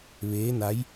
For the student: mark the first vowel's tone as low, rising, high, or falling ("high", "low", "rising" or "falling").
rising